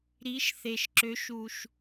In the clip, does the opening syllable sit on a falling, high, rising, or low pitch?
rising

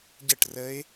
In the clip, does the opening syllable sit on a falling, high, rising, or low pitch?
falling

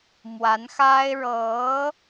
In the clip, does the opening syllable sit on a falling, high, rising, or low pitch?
rising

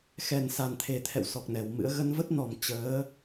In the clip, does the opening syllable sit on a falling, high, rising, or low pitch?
low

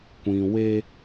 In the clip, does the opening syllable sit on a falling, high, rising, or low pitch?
low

